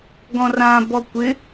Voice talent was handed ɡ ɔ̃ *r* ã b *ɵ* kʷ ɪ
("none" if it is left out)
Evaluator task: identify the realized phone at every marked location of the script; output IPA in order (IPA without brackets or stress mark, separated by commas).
r, ɔ